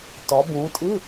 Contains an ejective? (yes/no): yes